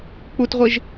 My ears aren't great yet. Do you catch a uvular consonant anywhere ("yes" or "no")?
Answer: yes